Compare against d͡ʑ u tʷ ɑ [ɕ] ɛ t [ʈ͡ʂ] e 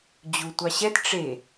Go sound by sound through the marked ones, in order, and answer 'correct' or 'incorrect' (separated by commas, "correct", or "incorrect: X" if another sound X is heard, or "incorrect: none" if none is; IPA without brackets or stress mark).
correct, correct